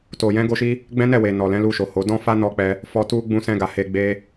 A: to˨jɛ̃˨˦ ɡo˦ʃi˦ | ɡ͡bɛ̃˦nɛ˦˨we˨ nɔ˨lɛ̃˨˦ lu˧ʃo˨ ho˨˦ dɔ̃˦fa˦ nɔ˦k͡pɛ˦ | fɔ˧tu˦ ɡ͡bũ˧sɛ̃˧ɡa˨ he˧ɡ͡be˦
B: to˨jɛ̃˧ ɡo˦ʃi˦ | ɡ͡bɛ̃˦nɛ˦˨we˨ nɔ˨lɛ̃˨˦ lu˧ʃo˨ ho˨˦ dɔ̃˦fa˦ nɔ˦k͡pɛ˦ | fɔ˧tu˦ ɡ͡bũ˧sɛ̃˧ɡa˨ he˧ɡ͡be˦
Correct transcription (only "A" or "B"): A